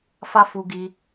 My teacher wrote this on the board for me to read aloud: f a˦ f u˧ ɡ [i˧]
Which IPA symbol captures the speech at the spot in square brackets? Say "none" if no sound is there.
i˧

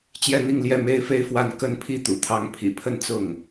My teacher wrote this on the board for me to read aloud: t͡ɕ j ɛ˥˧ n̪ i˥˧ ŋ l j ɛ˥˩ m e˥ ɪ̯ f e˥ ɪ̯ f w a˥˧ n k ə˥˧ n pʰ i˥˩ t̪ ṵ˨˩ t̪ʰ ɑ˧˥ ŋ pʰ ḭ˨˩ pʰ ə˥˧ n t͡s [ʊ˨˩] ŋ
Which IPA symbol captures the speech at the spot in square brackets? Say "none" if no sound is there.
ʊ˥˩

